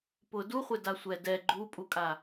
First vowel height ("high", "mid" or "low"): high